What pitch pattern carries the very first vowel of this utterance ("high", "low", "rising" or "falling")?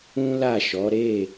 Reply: high